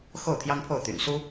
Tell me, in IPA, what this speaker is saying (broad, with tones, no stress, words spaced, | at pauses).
xo˥˩ʊ̯t̪ʰjɑ˥ŋpʰo˥˩ʊ̯ t̪y̰˨˩nsu˥